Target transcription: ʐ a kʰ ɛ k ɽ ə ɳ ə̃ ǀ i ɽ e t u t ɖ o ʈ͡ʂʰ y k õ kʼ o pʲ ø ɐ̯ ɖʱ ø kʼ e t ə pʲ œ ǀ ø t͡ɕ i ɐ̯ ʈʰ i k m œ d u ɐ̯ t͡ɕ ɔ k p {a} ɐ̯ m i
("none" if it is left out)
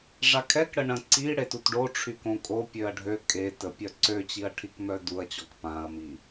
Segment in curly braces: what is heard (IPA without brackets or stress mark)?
ã